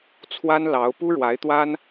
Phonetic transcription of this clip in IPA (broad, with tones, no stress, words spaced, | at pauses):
t͡sʰwa˥nlɑ˧˥ʊ̯ pu˥ɻwa˧˥ɪ̯t̪wa˥n